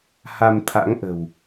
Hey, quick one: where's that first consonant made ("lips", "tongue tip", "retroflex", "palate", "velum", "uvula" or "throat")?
throat